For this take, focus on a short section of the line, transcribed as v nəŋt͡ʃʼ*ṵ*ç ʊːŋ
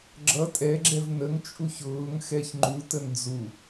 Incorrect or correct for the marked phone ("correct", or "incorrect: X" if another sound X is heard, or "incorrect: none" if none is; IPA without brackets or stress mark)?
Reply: incorrect: u